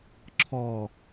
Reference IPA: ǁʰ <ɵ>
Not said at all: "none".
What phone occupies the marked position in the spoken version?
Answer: ɔ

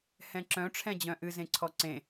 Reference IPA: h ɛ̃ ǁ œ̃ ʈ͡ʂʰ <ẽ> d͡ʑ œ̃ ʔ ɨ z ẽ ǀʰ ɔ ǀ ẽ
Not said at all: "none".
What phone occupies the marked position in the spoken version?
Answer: ɛ̃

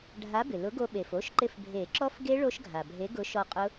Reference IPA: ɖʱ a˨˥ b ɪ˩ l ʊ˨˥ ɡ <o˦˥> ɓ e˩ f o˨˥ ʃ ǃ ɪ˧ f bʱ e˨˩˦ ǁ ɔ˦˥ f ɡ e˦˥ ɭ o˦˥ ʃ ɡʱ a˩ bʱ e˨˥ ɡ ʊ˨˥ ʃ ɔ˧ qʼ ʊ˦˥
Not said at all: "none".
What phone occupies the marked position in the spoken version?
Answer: o˧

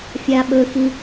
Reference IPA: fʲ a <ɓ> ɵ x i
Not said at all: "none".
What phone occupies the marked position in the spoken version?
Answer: ɓ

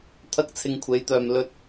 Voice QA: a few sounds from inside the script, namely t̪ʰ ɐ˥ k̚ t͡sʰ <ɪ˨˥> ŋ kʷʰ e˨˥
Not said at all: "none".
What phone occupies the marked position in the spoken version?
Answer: ɪ˧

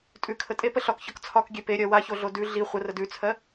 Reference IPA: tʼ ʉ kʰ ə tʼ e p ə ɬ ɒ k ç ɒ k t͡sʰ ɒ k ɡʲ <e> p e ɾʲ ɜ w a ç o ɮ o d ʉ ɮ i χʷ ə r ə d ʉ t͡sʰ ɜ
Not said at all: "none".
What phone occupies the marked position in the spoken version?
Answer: e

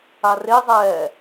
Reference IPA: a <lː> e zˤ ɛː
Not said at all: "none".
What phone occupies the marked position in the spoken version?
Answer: r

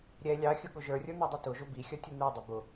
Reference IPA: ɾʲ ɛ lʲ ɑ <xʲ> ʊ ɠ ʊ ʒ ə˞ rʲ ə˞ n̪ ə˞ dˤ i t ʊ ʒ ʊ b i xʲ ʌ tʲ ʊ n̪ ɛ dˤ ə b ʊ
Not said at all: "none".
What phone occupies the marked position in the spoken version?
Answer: xʲ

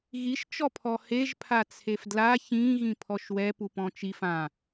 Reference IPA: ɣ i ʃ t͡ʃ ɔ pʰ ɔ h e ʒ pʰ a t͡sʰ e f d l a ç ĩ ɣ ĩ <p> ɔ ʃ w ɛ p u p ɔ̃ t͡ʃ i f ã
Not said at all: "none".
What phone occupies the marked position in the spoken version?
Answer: pʰ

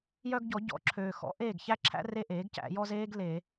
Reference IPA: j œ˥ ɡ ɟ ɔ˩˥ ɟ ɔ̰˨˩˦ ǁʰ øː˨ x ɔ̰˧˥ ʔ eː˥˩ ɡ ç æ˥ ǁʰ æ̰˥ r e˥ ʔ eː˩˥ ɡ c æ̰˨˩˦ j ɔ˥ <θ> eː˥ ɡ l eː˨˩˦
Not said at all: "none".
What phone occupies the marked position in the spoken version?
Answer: z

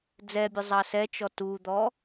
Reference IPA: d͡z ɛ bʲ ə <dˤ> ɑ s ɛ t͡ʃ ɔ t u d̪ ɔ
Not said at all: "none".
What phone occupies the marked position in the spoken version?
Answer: zˤ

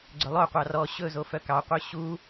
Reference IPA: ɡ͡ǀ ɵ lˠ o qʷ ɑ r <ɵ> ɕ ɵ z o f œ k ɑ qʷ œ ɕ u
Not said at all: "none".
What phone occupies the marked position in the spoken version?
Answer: ɔ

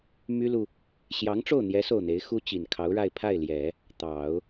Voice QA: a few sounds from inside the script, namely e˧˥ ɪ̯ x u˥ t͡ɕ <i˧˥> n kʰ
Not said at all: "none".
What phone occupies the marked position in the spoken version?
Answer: i˨˩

